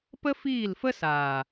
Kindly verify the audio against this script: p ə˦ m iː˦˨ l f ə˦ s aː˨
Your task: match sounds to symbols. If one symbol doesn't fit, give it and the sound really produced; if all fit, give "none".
m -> f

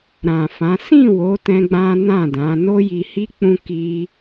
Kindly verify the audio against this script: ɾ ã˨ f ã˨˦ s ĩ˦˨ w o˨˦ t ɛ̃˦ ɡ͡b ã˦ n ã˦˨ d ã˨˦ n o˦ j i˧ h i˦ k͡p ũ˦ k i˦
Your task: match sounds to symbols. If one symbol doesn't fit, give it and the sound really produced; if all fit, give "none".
none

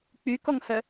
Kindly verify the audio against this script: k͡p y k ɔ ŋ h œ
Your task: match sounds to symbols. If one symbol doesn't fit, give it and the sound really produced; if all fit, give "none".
none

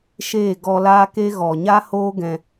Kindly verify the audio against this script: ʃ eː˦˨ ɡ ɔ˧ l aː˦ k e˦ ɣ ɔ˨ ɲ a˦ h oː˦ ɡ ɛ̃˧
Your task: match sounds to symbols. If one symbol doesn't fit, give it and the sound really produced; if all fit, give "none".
none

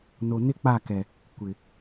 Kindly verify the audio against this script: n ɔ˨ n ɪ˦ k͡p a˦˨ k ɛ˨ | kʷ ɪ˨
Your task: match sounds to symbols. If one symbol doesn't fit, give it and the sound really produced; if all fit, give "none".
ɔ˨ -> o˨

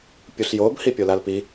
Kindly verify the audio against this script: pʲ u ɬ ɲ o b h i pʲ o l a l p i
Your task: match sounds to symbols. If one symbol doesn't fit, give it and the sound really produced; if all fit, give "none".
ɲ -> j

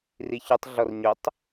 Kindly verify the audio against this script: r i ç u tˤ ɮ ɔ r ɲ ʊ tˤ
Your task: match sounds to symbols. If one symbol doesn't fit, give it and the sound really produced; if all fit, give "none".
none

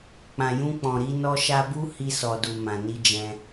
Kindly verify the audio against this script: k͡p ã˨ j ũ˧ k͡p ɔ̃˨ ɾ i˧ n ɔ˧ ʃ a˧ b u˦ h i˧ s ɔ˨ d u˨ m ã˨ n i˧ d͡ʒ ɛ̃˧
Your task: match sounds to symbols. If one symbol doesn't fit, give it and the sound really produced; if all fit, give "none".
none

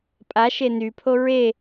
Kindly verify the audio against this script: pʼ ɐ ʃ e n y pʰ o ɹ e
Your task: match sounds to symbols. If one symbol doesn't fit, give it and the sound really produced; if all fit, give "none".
ɐ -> a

